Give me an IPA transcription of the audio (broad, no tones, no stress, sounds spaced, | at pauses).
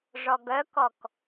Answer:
ʐ ɔ ɡ œ k ɔ k